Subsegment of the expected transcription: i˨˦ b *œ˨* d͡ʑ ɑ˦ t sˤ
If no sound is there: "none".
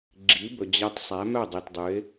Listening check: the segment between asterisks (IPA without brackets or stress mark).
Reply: ɵ˨